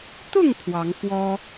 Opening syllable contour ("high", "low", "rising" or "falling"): falling